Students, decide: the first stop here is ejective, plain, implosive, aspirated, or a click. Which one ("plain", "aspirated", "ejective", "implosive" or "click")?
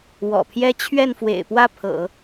aspirated